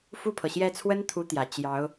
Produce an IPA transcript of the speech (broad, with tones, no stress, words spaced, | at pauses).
fu˥˩pʰɤ˩ɕjɛ˥˩ t͡sʰwə˥n t̪ʰu˧˥ t̪jä˨˩ t͡ɕjɑ˧˥ʊ̯